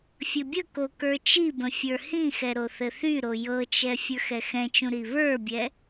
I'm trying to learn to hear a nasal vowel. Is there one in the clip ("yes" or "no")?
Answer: yes